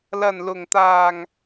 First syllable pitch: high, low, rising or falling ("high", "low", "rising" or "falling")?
low